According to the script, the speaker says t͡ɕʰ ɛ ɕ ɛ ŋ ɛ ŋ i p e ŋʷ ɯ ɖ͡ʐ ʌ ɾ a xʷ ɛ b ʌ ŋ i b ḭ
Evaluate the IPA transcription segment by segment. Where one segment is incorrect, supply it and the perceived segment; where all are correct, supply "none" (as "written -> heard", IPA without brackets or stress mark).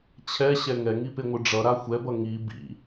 none